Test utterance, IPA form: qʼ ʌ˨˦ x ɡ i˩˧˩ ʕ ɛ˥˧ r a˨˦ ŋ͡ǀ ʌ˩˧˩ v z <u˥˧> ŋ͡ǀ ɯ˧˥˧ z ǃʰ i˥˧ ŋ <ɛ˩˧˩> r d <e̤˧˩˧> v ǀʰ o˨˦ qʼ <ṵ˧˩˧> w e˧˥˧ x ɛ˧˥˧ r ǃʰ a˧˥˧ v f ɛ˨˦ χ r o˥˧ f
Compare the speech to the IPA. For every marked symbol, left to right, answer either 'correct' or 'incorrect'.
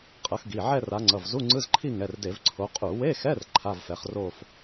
incorrect: u˧˥˧, correct, incorrect: e˧˩˧, incorrect: u˧˩˧

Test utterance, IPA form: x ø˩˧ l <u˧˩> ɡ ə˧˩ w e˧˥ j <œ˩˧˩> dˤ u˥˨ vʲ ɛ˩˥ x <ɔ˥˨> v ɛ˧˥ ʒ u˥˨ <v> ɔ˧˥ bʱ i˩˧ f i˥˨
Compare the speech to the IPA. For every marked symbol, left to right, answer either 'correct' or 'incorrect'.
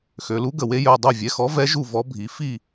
incorrect: u˧˥, correct, incorrect: ɔ˩˥, correct

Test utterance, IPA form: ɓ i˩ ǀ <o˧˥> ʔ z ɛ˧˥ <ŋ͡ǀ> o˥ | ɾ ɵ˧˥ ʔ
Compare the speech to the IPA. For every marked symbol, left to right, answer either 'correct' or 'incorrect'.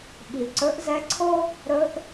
incorrect: ɵ˧˥, incorrect: ǀʰ

